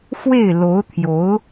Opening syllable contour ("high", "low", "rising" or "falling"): falling